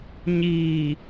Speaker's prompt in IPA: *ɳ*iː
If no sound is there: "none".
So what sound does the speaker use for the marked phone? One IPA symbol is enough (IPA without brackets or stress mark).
ɲ